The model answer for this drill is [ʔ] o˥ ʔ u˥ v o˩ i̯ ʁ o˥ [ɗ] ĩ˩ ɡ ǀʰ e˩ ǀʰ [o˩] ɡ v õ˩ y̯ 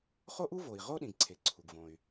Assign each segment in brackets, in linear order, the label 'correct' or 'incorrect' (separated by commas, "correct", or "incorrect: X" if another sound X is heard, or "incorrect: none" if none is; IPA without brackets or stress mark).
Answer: incorrect: χ, correct, incorrect: u˩